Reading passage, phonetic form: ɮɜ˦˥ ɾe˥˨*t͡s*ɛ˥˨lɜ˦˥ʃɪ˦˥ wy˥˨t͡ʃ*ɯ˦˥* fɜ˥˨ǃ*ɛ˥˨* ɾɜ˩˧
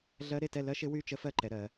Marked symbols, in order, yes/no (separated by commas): no, no, no